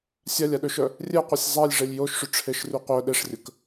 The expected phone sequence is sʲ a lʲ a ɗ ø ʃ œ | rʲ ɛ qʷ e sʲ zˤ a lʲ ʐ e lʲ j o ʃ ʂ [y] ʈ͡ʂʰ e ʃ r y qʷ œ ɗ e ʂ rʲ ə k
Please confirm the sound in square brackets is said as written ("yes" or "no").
yes